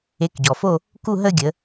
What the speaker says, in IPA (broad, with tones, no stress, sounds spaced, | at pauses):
e˨˦ k ɟ ɔ˩ f o˥˧ | k u˥˧ ɦ ə˥˧ ɡʲ ə˨˦